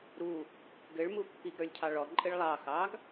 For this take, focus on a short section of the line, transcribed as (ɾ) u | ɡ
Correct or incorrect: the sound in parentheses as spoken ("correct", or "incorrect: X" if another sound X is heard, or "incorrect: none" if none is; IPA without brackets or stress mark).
correct